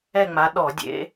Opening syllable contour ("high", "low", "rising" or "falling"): falling